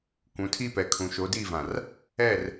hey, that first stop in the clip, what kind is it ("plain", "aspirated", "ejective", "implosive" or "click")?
plain